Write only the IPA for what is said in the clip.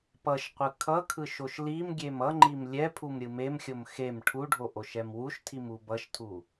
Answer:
pʌʃqʷɯ kʰʌkʰɯʃ oʃlimɡʲem ʌŋ͡ǃim lʲɛpʰum ɾʲɯmemxʲom xem ʈʰuɖʱo ʔoʃɛmwuʃtʰim ubʌʃtʰu

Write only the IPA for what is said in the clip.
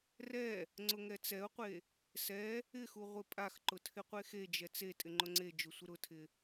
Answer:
rɛ | ŋ͡ǀʊŋɛt͡sɛʊ̯qʷe | sɛ | ɪxu ʁʷɪpʼaxǃʊ tʰɪqʷexed͡ʒɛ t͡se tʼɪŋ͡ǃʊŋ͡ǀed͡ʒʊ sʷɪɾʊtʰɪ

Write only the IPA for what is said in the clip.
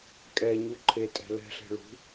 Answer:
kʼɛɲu ǃʰetʼɛ̤ lɛ̤ɬe̤ ɭṳ

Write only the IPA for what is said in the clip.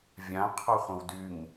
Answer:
vʲãqʰɔχʷə̃w dyŋ

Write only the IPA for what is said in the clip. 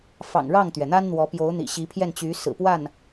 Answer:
fɑ̰˨˩ŋɻɑ˥˩ŋt̪ɥɛ˩n̪a˥n n̪wɔ˧˥pjo˧˥ʊ̯ n̪ḭ˨˩ɕi˧˥ pʰjɛ˥˩nt͡ɕy˧˥ sɹ̩˨˩pwa˥˩n

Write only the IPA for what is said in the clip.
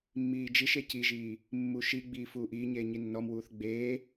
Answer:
mːiːd͡ʒiʃe ciʒiː | mːuʃiɡ͡biː fuːʔiːɲeː ɲinːɔmwuːθ ɡ͡beː

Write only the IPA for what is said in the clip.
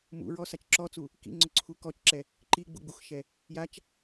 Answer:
mṵɹɔ sat͡ʃǁɔt͡su | kḭ ŋ͡ǀʊǀʰukɔt͡ʃǁɛ | ǃi ɡ͡bṵɡ͡buxʃɛ | jat͡ʃ

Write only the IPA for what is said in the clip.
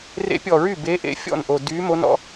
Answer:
rḛ˧˥pʲɔ˨˩ɹy˥˩ beː˧˥ʔḛ˧˥ fʲɔ̰˥˩nʔo˨˩ dyː˧˥mo˧˥nɔ̰˧˥

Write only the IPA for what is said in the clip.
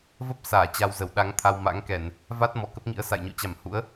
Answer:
və˦˥p̚ saː˧˩t͡ɕa˧wzə˧˩w ɗa˨˦ŋt̪ʰa˧wma̰˧˥ŋkɛ˧˩˨n | va˦˥t̚ mɔ˧˩kə˦˥p̚ŋḭ˧˥ə̯sa̰˧˨j ɲo̰˧˨t͡ɕa˧˩m hṵ˧˥ə̯

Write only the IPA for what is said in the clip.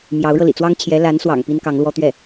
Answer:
mjɑ˧˥ʊ̯ɻɤ˧lḭ˨˩ t͡swɑ˥ŋt͡ɕʰjɛ˧˥la˧˥nswɑ̰˨˩ŋ pi˥nkɑ˧˥ŋlwɔ˥t̪ɥɛ˥˩

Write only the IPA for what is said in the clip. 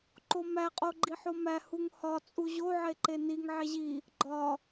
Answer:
ǃomæ qʼoɡ͡ǃiħomæ huŋhɒ t͡sʼuʑo ʕeǃeniŋ ʕeʑi | ɡ͡ǃɒ

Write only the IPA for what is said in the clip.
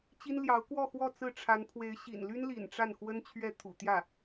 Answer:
t͡ɕi˥nljɑ˧˥ʊ̯ kwɔ˥˧ xwɔ˥˧t͡sɹ̩˥˩ ʈ͡ʂʰa˧˥npʰwe˧˥ɪ̯ɕḭ˨˩n ly˥nlḭ˨˩n ʈ͡ʂa˥˩nxwə˥n t͡ɕʰɥɛ˥˩t̪ʰṵ˨˩t̪jä˥˩

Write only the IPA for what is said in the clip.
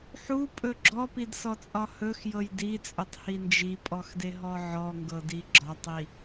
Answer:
ħupʼɵ ɡ͡ǁɔpidsɔt͡sʼɒ hɵxjɤj dit͡sʼɵtˤhi nd͡ʒipʼɔxdeɦɔ ʕɔŋɡɤdi ɡ͡ǁɒtˤi

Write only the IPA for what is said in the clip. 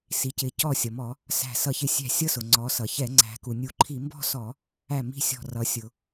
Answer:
si˩˧cɪ˩˧cɔ˧˩ sʲʌ˩mɔ˧˩˧ | sæ̤˧˩ sʌ˧˩çɪ˧˩sʲæ̤˧˩ sʲʌ˥˧ sʊ˩ŋ͡ǀɔ˩˧ sʌ˩çɛ˧˩˧ ŋ͡ǀæ̤˩˧ku˩nʲu˧˩˧ǃʰi˧˩˧ mbɔ̤˥˧sɔ˧˩˧ | æ˧˩ mi̤˥˧sʲɔ̤˧˩rʌ˩˧ sʲʊ˩

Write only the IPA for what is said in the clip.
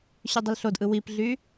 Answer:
ɕydˤəlɬodʔɯ wipɮy

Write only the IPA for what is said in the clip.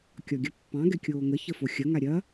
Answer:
kʲɒɡʲɐpːɑ̃ ɡɛkʲoːŋə çəfoxʲɐ ŋaɾʲɐ

